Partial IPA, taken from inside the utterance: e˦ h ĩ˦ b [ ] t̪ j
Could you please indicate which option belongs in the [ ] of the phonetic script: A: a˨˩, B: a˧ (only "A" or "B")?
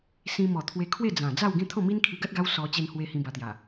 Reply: B